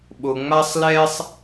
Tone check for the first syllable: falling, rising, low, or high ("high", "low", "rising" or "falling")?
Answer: low